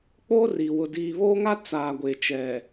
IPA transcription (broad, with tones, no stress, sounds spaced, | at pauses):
k͡p oː˦ r iː˨ w ʊ˨ d iː˨ β oː˦ ŋ a˦ t͡s aː˨ ɡʷ eː˨ t͡ʃ ɛ˨